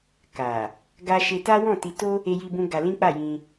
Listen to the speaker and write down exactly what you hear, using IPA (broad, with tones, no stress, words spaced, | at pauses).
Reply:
ka˨ | ɡa˧ ʃe˧ta˦wɔ̃˦˨ti˧ to˧ | e˧ji˧bũ˧ ɡa˧lĩ˦k͡pa˦˨jĩ˧